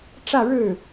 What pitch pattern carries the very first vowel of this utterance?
falling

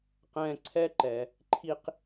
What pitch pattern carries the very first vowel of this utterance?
high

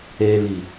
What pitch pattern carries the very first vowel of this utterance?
low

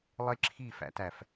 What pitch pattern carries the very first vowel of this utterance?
high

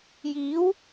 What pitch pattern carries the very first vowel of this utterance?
rising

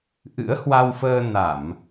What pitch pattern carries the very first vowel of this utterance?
rising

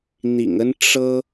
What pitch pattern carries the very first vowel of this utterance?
low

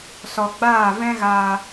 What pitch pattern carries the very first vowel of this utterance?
low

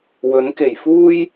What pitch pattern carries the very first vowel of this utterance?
rising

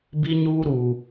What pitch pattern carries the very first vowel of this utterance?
high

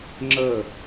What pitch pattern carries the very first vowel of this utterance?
falling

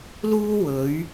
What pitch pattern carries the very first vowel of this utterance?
high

